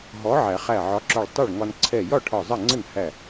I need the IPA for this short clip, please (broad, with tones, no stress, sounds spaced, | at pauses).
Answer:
ɦ ɔ˨˥ ʕ æ˨˩˦ χ æ˧˩ ʕ ɒ˨˥ ǁ ɔ˧˩ ɭ tˤ ʊ˥˩ ɭ ŋ ɒ˧ n ǀʰ ɛ˧˩ j ɒ˥˩ ʈʰ ɒ˧˩ zˤ ɜ˥˩ ŋ͡ǀ ə˥˩ n h æ˧˩